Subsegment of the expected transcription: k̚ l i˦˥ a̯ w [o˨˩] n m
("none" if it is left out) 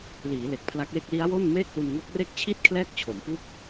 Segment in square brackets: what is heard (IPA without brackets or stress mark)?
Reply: o˥˩